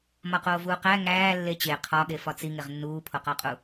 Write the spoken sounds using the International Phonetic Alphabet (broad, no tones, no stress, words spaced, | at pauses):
mɒqoːvuːqæ ŋæː lːet͡ɕe qʰɒɠe fɒt͡siŋeʁ nːuːpʰoqɒqʼu